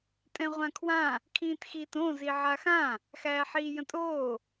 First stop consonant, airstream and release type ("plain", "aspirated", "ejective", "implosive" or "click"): ejective